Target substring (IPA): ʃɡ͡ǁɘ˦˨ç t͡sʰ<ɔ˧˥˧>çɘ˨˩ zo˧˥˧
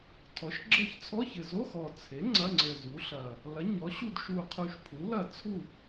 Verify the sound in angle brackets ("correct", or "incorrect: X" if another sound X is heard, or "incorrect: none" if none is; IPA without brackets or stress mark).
correct